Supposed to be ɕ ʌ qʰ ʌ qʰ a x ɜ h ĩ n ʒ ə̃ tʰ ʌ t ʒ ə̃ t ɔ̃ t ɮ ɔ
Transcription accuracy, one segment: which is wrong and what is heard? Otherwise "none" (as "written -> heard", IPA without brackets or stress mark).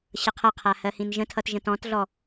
x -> h